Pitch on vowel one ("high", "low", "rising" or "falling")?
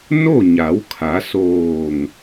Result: falling